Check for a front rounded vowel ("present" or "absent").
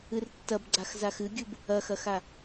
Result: absent